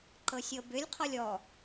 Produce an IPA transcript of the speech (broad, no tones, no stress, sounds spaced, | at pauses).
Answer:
ǃ ɤ sʲ ɤ b ʏ lʲ qʰ ɔ lʲ ɔ